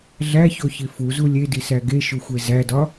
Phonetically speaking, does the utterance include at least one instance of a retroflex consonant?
no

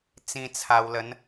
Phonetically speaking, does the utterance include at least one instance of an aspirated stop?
yes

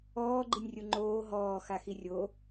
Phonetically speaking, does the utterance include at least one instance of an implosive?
no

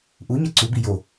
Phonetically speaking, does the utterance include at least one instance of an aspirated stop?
no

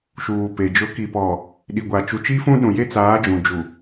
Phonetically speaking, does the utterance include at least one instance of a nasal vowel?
yes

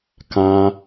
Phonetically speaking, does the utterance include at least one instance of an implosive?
no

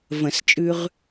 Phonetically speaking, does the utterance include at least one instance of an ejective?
yes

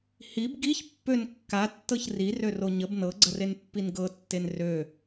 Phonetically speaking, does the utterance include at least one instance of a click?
yes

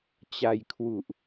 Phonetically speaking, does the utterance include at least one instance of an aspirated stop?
yes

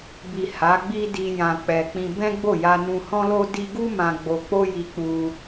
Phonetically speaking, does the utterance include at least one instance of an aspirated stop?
no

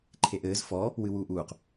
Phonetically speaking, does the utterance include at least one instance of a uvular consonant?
yes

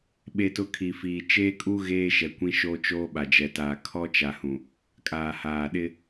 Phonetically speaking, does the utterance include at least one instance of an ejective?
yes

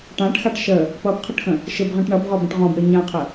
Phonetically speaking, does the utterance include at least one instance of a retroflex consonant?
yes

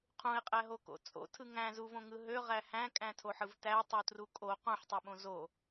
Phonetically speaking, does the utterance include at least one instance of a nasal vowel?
yes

